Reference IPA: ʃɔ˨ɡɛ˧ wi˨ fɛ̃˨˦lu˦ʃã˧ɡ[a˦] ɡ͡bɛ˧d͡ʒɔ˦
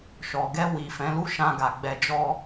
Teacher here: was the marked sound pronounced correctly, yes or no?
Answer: no